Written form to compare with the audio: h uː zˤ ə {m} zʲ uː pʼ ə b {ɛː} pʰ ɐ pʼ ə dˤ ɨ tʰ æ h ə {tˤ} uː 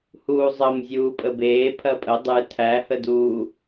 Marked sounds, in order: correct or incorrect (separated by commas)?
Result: correct, incorrect, incorrect